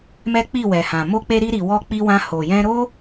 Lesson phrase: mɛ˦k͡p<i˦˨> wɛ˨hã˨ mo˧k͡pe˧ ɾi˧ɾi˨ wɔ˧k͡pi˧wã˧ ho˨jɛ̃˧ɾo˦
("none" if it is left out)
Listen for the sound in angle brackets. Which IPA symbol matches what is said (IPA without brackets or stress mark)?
i˦˨